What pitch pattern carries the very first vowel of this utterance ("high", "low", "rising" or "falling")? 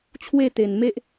falling